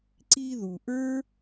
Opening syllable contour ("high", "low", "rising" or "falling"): high